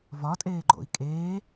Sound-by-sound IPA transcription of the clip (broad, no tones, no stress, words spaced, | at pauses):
vɒtʼeːɡ͡ǃo̰i̯ kʼeː